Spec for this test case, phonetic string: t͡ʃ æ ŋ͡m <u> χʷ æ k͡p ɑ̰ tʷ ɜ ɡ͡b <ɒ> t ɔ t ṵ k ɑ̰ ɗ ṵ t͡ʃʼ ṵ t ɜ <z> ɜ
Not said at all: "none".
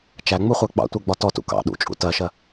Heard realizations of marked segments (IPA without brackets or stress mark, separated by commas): u, ɒ, ʃ